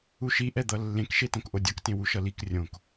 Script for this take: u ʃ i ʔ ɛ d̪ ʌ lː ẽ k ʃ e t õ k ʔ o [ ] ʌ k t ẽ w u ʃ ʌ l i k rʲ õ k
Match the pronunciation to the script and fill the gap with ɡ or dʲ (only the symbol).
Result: dʲ